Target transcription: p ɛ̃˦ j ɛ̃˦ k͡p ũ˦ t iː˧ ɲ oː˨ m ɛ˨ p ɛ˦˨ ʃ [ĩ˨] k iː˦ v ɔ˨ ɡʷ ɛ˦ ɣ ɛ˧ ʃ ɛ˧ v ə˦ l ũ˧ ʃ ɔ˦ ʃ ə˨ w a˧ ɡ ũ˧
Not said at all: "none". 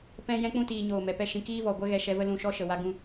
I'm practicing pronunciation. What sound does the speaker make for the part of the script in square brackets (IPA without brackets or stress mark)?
ĩ˧